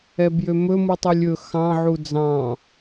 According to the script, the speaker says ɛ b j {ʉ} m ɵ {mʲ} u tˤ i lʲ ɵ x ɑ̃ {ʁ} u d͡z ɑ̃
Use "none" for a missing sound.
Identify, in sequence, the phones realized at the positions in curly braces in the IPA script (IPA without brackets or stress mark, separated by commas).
ø, m, ʕ